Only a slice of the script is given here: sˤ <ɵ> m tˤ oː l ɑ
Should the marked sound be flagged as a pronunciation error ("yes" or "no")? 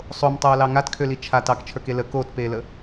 yes